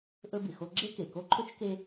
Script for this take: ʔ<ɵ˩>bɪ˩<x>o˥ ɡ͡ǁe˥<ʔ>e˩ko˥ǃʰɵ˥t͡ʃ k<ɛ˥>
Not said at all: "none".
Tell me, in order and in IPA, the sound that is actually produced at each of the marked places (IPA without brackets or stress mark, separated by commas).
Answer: ɵ˥, x, k, e˥